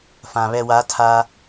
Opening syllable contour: low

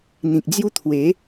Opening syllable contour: low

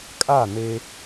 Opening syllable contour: falling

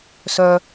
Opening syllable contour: high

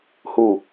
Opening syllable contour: falling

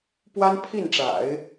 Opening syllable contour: high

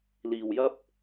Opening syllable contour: low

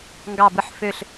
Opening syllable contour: falling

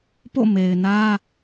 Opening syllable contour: falling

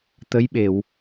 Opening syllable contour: rising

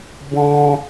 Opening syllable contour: high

